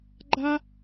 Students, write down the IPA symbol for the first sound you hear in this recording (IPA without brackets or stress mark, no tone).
ɡ͡ǃ